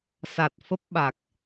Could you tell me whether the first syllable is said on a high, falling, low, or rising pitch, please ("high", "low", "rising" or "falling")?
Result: low